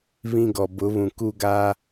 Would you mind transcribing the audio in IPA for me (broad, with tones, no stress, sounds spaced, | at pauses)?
β ĩ˦ ɡ ɔ˨ b ʊ˨˦ β ũ˨ k u˦ ɡ a˦